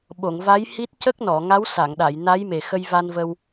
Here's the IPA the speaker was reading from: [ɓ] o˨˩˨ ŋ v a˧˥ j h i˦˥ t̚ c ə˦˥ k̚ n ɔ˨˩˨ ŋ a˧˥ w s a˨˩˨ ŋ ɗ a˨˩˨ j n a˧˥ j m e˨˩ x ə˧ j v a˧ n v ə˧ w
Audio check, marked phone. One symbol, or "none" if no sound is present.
ɓ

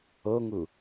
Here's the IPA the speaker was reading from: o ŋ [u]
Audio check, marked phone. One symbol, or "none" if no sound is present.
u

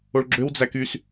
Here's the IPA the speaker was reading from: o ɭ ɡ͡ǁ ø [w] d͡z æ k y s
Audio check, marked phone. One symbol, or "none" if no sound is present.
w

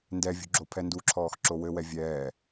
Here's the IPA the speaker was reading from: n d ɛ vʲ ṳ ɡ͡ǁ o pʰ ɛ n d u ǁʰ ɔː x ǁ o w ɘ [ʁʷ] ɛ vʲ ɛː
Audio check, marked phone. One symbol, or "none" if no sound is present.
w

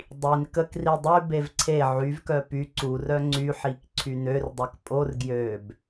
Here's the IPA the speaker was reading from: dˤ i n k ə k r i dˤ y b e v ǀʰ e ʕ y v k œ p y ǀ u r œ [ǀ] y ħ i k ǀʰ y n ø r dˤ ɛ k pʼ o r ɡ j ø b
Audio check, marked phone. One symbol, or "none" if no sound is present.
ŋ͡ǀ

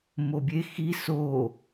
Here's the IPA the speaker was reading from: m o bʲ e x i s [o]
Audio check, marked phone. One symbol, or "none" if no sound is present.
o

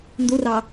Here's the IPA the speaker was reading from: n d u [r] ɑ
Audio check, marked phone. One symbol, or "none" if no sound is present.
r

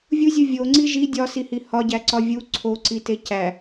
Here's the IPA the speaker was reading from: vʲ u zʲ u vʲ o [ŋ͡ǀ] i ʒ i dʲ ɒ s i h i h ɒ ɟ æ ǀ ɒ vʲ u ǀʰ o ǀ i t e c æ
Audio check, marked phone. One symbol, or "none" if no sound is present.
ŋ͡ǀ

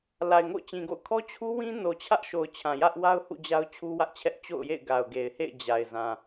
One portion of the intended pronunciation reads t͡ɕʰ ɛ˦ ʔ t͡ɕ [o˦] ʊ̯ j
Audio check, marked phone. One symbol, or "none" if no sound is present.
o̰˦˨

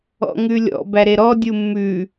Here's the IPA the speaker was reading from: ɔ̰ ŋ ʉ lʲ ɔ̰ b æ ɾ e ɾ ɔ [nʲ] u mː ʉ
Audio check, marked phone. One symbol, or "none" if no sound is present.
dʲ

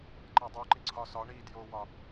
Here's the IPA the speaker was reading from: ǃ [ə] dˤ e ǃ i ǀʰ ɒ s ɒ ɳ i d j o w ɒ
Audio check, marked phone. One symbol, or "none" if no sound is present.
æ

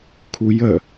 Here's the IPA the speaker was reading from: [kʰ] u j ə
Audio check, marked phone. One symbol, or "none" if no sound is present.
kʰ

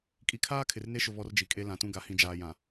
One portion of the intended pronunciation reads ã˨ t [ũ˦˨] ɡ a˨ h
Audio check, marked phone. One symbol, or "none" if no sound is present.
ũ˦˨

